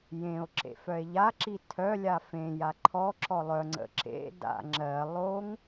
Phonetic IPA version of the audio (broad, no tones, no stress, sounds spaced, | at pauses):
j ẽ o̯ ǁ ḛ f œ e̯ ʎ a ǁ i tʰ œ lʲ a f ẽ j a ǃʰ ɔ ǁ ɔ lˠ œ ŋ͡ǀ ə̰ ǁ ḛ d a̰ ŋ͡ǁ ɜ lˠ o ŋ